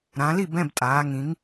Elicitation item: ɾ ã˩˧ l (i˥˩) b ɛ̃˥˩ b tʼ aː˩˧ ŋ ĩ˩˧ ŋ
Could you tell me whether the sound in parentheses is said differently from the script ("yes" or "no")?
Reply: no